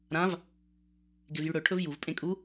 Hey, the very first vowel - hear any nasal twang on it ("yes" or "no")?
yes